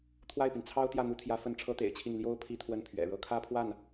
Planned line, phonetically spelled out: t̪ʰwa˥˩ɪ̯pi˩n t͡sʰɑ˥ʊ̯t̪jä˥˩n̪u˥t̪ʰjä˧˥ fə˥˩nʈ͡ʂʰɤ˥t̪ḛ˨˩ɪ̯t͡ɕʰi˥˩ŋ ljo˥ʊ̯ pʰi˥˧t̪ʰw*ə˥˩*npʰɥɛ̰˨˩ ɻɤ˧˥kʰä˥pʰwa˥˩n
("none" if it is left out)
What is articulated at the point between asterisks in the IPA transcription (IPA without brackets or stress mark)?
ə˥˩